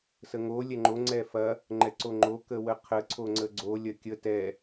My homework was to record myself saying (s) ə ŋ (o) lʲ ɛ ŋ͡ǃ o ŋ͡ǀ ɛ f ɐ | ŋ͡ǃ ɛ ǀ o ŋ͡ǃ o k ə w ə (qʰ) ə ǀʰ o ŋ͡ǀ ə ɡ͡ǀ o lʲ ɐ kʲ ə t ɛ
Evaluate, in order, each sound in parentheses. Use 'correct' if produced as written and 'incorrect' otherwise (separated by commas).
correct, correct, correct